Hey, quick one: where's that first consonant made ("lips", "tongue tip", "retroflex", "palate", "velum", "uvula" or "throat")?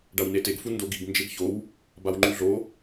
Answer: retroflex